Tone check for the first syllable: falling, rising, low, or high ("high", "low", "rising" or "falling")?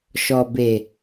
low